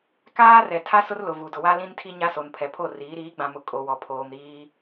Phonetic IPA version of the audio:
kaː˦ rɛ˨tʰa˦ sʊ˦rlʊ˨vu˨ dʊ˨wa˦ lĩ˦ntʰi˦ ɲa˦so˨npʰɛ˨ pʰo˦˨riː˨˦ ɾiː˨˦ɡ͡bã˨ mʊ˨ kʼo˨wɔ˨ pʰoː˨m ɾiː˦

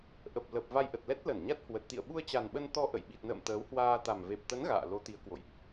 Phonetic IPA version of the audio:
ʔə˨˩p̚lə˨˩p̚ va˧jʔə˨˩t̚lɛ˦˥t̚ lə˧˩nɲa˦˥t̚hwə˨˩t̚ t̪ḭ˧˨ə̯ɓu˧ə̯ t͡ɕa˨˩nɓə˧nt̪ɔ˧ ʔə̰˧˨j ɓi˨˩t̚nə̰ː˧˨m t̪əː˨˦whwaː˧t̪a˨˩m ve˨˩p̚t̪ə˨˦n ɣa̰ː˧˨lo˨˦t̪i˨˦ə̯kwo̰˧˨jʔ

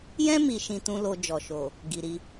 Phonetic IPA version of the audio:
jɛ̃˧mi˨ ʃĩ˧tũ˦lo˧ d͡ʒɔ˨ʃo˨ | ɡi˨ɾi˧

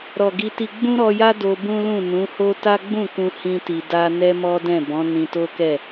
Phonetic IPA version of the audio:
ɾɔ˨ɡi˧ti˧ ɡ͡bũ˦ɾɔ˧ja˦ do˧bũ˦lũ˦˨ nũ˨˦ho˦ ta˦ɡ͡bũ˦˨kũ˧ hĩ˦ti˧ da˦ nɛ˦mɔ˦dɛ̃˦˨ bɔ̃˨˦ nĩ˧to˦kɛ˦˨

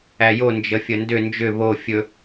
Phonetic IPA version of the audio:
æjo nd͡ʒəfʲəndʏ nd͡ʒʏ βo fʲɵ

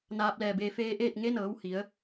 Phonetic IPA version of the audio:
naː˧p̚lɛː˧˩beː˧ feː˧ʔeː˥˨t̚ ŋe˧˥nɤː˩˧w hi˩˧ə̯

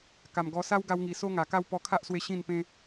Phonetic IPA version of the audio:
ka˨˩mɡɔ˧ sa˦wɡa˧wŋi˨˩ so˦ŋa˨˩ka˦w pɔ˧kʰa˦ʔswe˧ ɕĩ˥˧npẽ˦

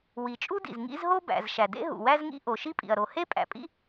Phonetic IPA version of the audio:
wi˩t͡ʃʼu˥dḭ˩z ŋḭ˥z ɦo˥bæ̰˩z ʃæ˩dḛ˥ ɦṵ˩wæ˥zŋḭ˥ ʔo˩ʃi˥pʼḭ˩ɐ̯ ɾo˩ he˥pʼæ̰˩pʼḭ˥

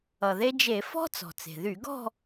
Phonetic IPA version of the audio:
ʌ˩ðe˧d͡ʒe˧˩˧ fɔ̤˥ t͡sɔ̤˩t͡se̤˩ ðy˧˩˧ɡɔ̤˥˧

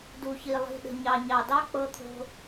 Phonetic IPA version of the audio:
du˨çi˨ lˠi̤˨ ɗə̤˨ɲɑ˨ ɲɑ˨dɑ˦ k͡pɤ˧t̪ʰo̤˧

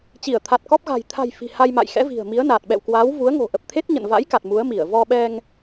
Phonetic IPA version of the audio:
t͡ɕi˧˩ə̯t̪ʰa˨˩t̚kɔ˦˥p̚ ɣa̤˨˩jt̪ʰa̤˨˩j fi̤˨˩ha˧jma̰˧˨j xɛ̰˧˥vi̤˨˩ə̯mi˨˦ə̯naː˨˩t̚ ɓɛ̰˧˨wkwaː˨˦wvu˨˦ə̯ ŋo̤˨˩ʔə˨˩p̚t̪ʰe˦˥t̚ ɲə̰˧˨nva̰˧˥jka˨˩t̚ mu˨˦ə̯mi˧˩ə̯ vɔ˧ɓɛ˧ŋ

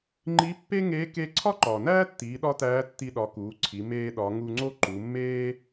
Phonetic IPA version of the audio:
ŋ͡ǃi˧˥pːe˥ŋeː˧˥ ke˥ ǀʰɒ˥ǃɒː˩næː˥tːiː˩˧ ɗɒ˥tæː˧˥tːi˧ ɗɒ˩˧ kuː˩˧ǀʰi˩˧ meː˧ɗɒ˩˧ŋu˧ŋ͡ǀo˥ ǃu˩˧mːeː˥

